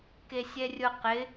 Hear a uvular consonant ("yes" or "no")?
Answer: yes